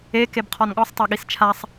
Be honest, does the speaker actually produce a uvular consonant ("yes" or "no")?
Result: yes